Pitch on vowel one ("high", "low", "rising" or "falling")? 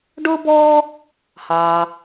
high